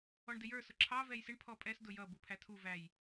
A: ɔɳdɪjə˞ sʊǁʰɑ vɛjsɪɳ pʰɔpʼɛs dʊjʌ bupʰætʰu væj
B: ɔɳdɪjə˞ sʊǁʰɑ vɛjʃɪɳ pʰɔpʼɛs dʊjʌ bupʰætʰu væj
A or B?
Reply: A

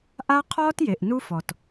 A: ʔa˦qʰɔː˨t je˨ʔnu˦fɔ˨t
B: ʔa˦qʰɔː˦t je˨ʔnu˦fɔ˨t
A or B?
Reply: B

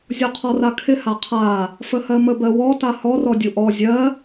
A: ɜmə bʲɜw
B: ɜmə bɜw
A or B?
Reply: B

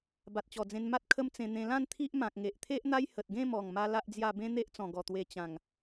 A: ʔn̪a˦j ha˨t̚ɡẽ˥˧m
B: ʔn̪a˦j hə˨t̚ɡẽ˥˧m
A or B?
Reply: B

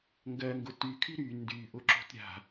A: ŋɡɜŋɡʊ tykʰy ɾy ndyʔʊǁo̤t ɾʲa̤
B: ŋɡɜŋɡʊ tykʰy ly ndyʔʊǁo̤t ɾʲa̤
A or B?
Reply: A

